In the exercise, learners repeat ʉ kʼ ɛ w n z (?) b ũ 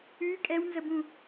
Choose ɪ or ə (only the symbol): ə